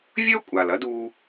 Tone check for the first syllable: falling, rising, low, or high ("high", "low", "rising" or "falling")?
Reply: high